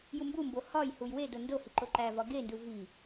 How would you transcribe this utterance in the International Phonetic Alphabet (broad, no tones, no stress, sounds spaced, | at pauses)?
j u m b u m b o h ɒ j h u j w e d o n d o h i ǃ o ǃ æ v ɒ ɡ e n d u v i